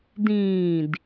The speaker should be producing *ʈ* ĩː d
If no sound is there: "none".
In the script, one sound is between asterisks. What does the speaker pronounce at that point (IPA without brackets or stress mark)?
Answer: d